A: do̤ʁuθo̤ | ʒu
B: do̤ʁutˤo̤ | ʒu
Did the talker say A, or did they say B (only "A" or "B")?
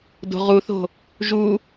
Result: A